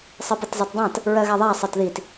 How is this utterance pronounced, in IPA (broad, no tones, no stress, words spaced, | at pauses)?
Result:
sˤɜpətzˤɛtdˤãt | ɹɜɣaðˤa sˤɜtðit